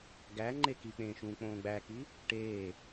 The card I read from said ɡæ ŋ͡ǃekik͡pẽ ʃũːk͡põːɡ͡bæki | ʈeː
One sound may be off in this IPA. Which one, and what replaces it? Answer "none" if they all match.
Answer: ẽ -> ẽː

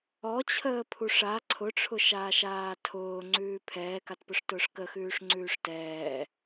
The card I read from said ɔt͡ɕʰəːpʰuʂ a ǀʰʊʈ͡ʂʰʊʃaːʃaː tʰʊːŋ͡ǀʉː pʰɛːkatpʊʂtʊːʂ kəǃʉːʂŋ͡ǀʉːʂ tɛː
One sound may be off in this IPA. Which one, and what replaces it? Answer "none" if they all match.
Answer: ǃ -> x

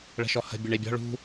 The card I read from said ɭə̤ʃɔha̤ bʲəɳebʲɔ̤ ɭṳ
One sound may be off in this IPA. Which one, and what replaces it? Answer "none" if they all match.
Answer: a̤ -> ə̤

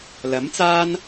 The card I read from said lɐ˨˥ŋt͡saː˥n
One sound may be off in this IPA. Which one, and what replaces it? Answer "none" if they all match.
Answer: ŋ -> m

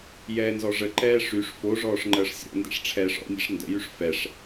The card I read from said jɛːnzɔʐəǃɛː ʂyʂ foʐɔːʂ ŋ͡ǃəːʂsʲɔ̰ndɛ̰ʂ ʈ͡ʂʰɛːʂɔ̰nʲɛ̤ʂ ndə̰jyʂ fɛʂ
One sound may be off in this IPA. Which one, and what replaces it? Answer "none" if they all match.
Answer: none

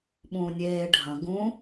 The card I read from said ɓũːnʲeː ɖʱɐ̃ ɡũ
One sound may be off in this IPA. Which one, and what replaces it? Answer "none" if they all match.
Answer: none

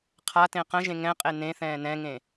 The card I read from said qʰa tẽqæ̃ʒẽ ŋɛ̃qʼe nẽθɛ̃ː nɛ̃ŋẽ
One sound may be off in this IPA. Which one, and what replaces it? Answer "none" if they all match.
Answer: æ̃ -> ə̃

